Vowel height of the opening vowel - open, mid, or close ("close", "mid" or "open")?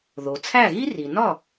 mid